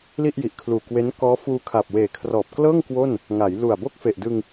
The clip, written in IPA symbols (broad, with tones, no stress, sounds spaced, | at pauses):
l i˥˩ ʔ j i˨˩ ʔ kʰ l uː˨˩ k w e˦˥ n k ɔː˦˥ f uː˧ kʰ a˨˩ p̚ w eː˨˩ kʰ r ɔː˨˩ p̚ k l ɤː˥˩ ŋ k w o˥˩ n | ŋ a˩˦ j l u˨˩ a̯ b o˥˩ k̚ f e˨˩ ʔ d ɯ˧ ŋ